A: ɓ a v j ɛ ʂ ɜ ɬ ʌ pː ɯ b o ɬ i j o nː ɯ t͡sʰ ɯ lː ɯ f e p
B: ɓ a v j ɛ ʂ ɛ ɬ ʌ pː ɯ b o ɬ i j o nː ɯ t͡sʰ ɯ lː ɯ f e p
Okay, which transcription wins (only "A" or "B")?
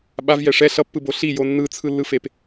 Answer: B